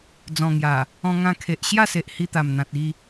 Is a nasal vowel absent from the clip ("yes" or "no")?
no